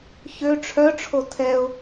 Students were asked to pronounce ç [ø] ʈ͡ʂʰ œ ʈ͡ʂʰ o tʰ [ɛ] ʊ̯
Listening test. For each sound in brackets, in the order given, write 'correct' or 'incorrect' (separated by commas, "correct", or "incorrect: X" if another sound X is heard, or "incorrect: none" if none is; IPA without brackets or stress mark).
correct, correct